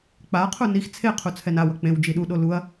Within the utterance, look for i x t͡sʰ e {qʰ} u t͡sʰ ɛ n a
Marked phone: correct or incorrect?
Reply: correct